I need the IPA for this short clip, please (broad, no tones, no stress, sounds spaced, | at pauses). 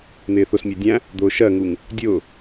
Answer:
n̪ ɪː θ ʊ s mʲ ɜ dʲ æ̃ | d̪ ʊː ʃ ɜ ŋ u ŋ | dʲ ʊː